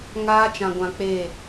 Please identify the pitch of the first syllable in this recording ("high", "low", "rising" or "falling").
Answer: high